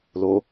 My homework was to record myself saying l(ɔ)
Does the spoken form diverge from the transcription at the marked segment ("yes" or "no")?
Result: yes